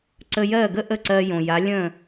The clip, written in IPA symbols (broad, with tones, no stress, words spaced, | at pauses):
ǀə˧jɜ˥˩ɡə˥ ʔə˥˩ǀɜ˧jõ˩ja˩˥ lʲə̃˥˩